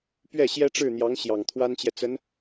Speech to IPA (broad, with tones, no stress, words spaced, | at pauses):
pɥɛ˥˩ɕjɛ˥ʈ͡ʂɻ̩˥˩n̪jɑ˧˥ŋ ɕjɑ˨˩ŋt̪ʰwa˥nt͡ɕjɛ˨t͡sə˧˥n